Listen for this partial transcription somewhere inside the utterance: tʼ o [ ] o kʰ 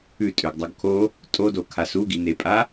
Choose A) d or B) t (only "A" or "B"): A